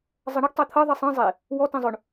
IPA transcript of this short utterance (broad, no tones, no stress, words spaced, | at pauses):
zˤɜɳɤɡ tˤet̪ʰɤ ðˤisˤĩ zˤe | wɔ tẽzˤʊɳ